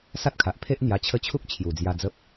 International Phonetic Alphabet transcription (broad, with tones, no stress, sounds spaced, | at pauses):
s a˦ t̚ kʰ a˨ ʔ pʰ e˦ ʔ n̪ j a˧ t͡ɕʰ ə˥˧ t͡ɕʰ u˦ k̚ t͡ɕʰ j u˨˩ d͡z j a˧ d͡z ə˦ p̚